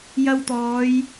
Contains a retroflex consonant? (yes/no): no